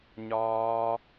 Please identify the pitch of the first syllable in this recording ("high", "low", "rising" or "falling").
high